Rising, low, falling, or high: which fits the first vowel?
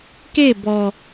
falling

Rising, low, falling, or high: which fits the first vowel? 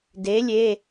rising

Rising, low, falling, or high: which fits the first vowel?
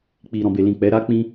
low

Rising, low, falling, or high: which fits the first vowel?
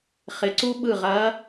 rising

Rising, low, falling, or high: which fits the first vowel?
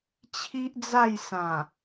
high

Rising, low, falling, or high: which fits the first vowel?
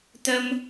high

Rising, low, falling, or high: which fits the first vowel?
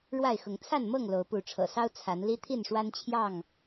falling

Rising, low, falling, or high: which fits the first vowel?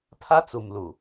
high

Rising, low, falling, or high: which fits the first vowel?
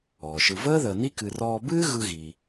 low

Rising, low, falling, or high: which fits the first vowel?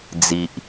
low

